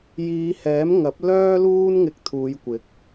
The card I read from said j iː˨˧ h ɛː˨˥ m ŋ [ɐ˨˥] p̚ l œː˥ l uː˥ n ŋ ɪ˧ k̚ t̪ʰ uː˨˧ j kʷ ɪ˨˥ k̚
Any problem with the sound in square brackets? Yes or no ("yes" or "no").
no